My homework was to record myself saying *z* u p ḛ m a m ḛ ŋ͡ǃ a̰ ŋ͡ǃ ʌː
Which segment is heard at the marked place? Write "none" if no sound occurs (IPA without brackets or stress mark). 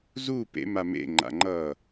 z